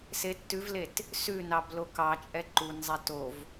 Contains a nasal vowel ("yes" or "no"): no